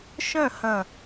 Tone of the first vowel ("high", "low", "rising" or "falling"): falling